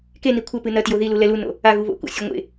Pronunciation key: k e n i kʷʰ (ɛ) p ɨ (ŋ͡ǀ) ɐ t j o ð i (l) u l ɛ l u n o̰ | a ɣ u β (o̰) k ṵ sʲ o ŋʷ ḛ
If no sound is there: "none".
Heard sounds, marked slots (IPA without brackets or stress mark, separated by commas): ɘ, n, l, o̰